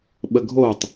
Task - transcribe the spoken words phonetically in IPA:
ɓəɡʱotˤ

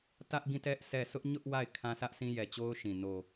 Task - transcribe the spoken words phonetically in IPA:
tä˦ʔ ɡĩ˦˨tɛ˦ʔ sɛ˦˨ sʊ˦ʔɲʊ˦ʔ wa˦˨ɪ̯kʰã˦ sä˦ʔsĩ˦ jɛ˨t͡ɕo˦ʊ̯ʃĩ˨ no˨

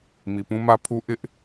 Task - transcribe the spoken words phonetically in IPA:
mi˨pũ˦mä˦pʰu˦ ʔɪ˦ʔ

